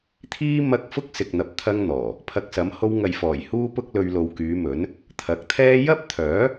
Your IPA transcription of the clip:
t̪ʰiː˥ mɐ˥k̚ fʊ˥k̚sɪ˨k̚n̪ɐ˨p̚ t̪ʰɐ˥ŋn̪ɔː˨˩ | pʰɐ˧k̚sɐ˨˥m ho˧wŋɐ˨jfɔː˨˩j huː˥pʊ˥k̚lɵ˧ɥ lo˨wkyː˨˧mɵ˨˥n | t̪ʰɐ˨˥k̚t̪ʰɛː˥ jɐ˥p̚t̪ʰœː˨˥

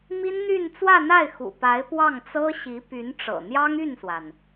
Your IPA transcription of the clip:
mi˥nn̪y˥˧n t͡swä˥˧n̪a˥˩ɪ̯xṵ˨˩pa˧˥ɪ̯ pwɑ˥˩ŋt͡sɤ˥ ɕi˧˥py˧˥nʈ͡ʂɤ̰˨˩ n̪jɑ˥ŋy˥˩nswa˩n

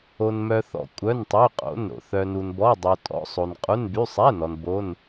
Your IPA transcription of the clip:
o˩nmœ˩θɔ̰˩ kʷʼœ˩˧˩ntˤy˩˧˩qʼo̰˩˧˩nɾo̰˩ θœ˩nu˩nbɔ˩˧˩ dˤo˩ tʼɔ̰˩˧˩sˤo˩n qʼu˩˧˩nby˩˧˩ sˤɛ˩˧˩nɔ˩n bo˩˧˩n

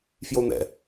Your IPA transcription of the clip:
fjon̪ɛ̰

